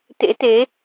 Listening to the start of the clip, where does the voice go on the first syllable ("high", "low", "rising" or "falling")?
rising